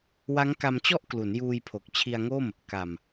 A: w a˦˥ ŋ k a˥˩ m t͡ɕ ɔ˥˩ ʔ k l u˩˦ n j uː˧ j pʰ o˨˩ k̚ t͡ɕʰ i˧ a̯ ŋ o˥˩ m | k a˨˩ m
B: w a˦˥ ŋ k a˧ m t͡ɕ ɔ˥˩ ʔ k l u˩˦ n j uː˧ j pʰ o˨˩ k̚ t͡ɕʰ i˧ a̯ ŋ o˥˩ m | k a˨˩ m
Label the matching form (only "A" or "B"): B